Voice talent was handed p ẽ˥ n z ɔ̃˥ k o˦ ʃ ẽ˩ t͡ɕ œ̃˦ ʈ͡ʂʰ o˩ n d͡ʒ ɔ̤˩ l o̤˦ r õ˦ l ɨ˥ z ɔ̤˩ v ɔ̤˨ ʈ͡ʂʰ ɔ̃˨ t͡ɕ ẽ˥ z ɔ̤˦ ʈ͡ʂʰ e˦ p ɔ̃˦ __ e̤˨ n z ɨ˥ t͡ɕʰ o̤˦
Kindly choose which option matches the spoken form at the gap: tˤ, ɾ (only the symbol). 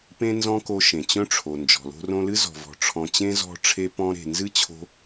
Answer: ɾ